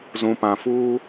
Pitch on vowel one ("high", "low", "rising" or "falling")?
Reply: low